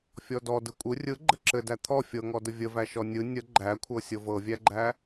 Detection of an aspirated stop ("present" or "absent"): present